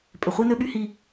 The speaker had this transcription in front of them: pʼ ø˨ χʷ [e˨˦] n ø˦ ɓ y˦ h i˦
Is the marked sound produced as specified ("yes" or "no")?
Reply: no